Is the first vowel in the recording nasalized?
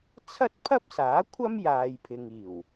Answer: no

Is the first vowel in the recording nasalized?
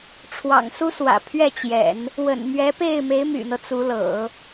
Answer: no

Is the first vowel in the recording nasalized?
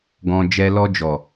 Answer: yes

